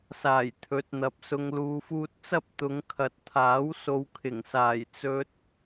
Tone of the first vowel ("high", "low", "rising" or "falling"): low